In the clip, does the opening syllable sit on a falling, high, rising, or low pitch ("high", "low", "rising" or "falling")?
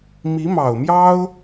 rising